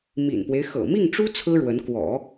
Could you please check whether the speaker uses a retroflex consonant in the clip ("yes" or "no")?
yes